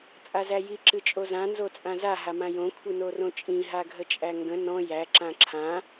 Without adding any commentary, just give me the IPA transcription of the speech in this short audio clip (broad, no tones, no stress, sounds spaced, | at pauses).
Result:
t͡sʼ a z æ j i ǁ ɨ t͡ʃʼ o z ã n z o t͡sʼ ã z a ɦ a m ã j õ kʷʰ ɨ n o r õ t͡ʃʼ ĩ ɦ a ɡʱ ə t͡ʃʼ æ ŋ ɡ ə̃ n ɔ̃ j æ ǁ ã ǁʰ ã